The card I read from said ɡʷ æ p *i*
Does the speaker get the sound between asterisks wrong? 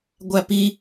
no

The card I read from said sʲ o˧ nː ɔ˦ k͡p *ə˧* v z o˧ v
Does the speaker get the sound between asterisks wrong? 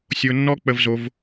no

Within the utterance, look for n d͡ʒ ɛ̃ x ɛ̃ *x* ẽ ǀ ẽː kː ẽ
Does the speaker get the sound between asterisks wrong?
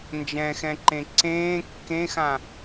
yes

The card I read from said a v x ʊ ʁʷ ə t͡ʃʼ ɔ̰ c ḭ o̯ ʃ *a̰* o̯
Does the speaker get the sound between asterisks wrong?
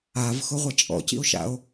no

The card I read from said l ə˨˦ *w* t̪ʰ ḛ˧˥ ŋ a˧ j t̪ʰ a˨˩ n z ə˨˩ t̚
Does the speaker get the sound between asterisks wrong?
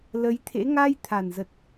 yes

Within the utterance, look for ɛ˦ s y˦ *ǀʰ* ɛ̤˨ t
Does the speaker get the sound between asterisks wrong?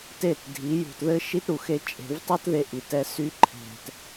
yes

